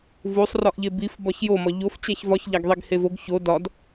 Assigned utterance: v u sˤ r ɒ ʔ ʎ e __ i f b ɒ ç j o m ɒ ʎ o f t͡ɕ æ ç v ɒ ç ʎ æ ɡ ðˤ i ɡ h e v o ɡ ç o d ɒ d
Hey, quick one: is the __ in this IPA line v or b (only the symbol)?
b